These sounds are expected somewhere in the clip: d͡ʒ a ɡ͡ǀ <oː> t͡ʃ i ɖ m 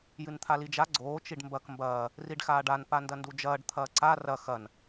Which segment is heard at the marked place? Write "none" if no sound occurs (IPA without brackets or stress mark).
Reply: oː